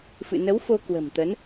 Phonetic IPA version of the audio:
fɨ̰˧˨nə˨˦w fo˧kwə̤˨˩mt̪ə˨˦n

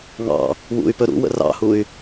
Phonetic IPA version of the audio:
ŋɑ̰ | wṵy̯pɵ ɾṵwə̰ rɑ̰huy̯

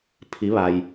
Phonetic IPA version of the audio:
pʰi˧˥ʋa˧j

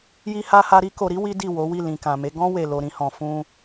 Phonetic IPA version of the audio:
ji˦ha˦ha˦ ɾi˦ko˧ɾi˦ wi˦di˦˨ wo˨˦wi˦˨ lĩ˨kã˨me˨˦ ɡɔ̃˦ we˦˨lo˧ ɾĩ˦hɔ̃˧ fũ˧

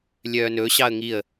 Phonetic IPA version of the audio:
lʲœːnɵ ɕɑə̯ŋiə̯

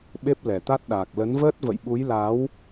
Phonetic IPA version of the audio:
ɓe˦˥p̚lɛ˨˩t̪a˦˥t̚ ɗaː˨˩k̚lə˨˦nvəː˦˥t̚ və̰˧˨jɓu˨˦jla˨˦w

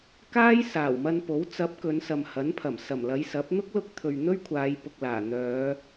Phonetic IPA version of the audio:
kaː˥jsaː˨˩wmɐ˧npo˨˥w t͡sɐ˨˥p̚ kɵ˨˧nsɐ˨mhɐ˨˥npʰɐ˨˩m sɐ˨˩mlɐ˨˧j sɐ˨˥p̚ n̪ʊ˥k̚lʊ˧k̚t̪ʰɵ˨ɥ n̪ɵ˥ɥkʷʰaː˨˧jpʊ˨k̚laː˨˩ n̪œː˨˧

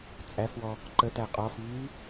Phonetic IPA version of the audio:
t͡sʼæfwɔ | ǃətæ qʼɔfiː

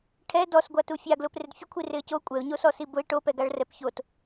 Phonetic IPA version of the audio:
ʈʰɛ dɔsɡʷatu fʲaɡlʊ prɪdfʲʊkʷʰi rɪə̯co kʷʼɛʊ̯ɲosɔ sibʊɪ̯ ʈopɛɡaɭ rɛpçot

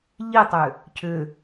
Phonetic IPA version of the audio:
ʎitˤʏ | cʰʏ

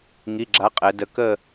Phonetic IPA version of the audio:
ŋi˩˧˩ɡ͡ǁa˨˥ qʼɛ˩˧ də˩˧kə˦˨

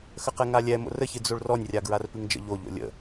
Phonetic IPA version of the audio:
xəqɛŋalʲɛ mo̰rəçɨ d͡zoɭrɔnʲrʲaɡɹar pɨŋd͡ʒə̰ ʎo ʎo̰lʲə̰

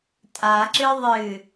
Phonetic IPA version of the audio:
tʼaǁɨ ðˤɨ

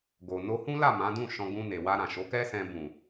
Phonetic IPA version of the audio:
ɡo˨ no˧hũ˦la˦˨ mã˨˦dũ˦˨ʃɔ̃˧ ɡũ˧ne˨ wa˧ ɾã˨ʃo˨˦kɛ˦sɛ̃˧ bũ˨

